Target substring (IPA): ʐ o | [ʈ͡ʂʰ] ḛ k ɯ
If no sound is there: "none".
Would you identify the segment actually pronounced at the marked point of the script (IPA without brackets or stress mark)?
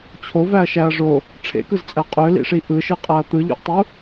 ʈ͡ʂʰ